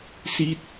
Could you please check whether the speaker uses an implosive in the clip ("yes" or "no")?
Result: no